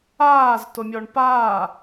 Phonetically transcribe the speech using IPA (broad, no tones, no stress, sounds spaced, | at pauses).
aː z t o mʲ ɔ ɳ p aː